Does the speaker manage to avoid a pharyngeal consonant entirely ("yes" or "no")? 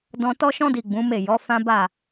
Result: yes